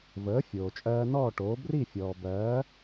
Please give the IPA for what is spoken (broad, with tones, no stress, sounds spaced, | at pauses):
v əː˩˥ fʲ oː˩ t͡ʃʼ ɜː˧ n ɔː˥˩ ʈ oː˩˥ b r i˥˩ fʲ ɔː˩ b ɜː˩˥